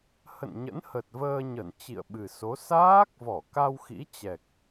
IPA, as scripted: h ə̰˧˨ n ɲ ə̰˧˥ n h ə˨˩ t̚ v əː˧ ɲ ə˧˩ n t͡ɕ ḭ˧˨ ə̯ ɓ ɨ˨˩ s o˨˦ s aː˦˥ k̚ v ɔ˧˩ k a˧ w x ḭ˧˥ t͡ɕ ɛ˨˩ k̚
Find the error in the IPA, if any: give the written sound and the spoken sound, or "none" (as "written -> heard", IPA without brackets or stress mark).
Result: none